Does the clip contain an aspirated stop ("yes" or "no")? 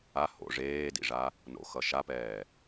no